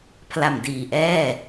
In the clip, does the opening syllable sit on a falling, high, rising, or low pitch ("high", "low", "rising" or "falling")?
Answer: low